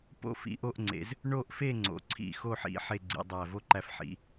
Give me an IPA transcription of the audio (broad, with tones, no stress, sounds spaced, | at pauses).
p o̰˥˧ f ḭ˧ ʔ o˥˧ ʔ ŋ͡ǀ ḛ˩˧ z | ɳ o˥˧ ʔ f e˥˧ ŋ͡ǀ o̰˩˧ ǀʰ ḭ˧˩ x o˥˧ ħ ḭ˩˧ ħ e˥˧ ɡ͡ǀ ḭ˩˧ dˤ æ˧˩ v o˥ ǃ æ˧ f ħ ḭ˩˧